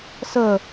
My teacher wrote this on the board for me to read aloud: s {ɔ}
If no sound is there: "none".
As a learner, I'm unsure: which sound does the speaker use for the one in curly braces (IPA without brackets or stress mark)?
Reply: ə